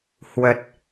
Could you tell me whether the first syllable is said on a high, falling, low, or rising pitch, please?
low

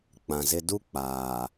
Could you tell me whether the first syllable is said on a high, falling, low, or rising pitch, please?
low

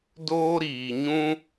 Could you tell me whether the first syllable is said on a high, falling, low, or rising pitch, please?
high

